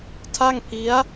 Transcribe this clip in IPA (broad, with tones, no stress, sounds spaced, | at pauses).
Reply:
tʰ a˥˩ ŋ pʰ i˦˥ a̯